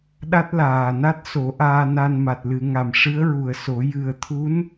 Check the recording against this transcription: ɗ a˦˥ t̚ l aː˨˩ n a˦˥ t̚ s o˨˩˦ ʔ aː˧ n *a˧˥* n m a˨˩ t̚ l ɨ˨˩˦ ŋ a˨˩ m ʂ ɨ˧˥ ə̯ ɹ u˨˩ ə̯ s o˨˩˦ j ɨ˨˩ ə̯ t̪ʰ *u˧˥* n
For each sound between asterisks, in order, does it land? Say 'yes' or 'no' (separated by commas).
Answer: no, yes